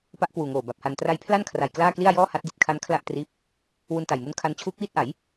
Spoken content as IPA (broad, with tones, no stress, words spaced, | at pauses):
pa˦˥ʔkwuː˨˩ŋoː˨˩ ba˨˩p̚ha˧n tra˧jpʰla˥˩nkʰra˨˩j klaː˥˩kli˥˩a̯ jɔː˥˩ha˦˥t̚ di˨˩t̚kʰa˦˥n kʰla˥˩ʔtriː˦˥p̚ | wu˧nta˨˩jmu˦˥nkʰa˦˥n t͡ɕʰuː˦˥k̚wiː˥˩t̚ʔa˩˦j